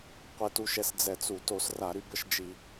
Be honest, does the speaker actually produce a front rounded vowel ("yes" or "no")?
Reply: yes